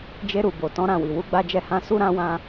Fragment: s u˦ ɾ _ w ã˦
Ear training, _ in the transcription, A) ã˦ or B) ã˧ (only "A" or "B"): A